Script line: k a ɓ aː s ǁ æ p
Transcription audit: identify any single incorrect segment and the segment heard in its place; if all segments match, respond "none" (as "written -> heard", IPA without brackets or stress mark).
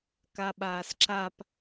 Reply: æ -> a